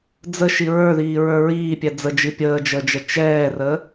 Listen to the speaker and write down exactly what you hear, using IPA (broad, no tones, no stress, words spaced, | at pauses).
d͡zəʃi ɹə˞ðiːɹə˞ ɹiːpʲɛ d͡zəd͡ʒi pʲəːd͡ʒəːd͡ʒə t͡ʃɛːrə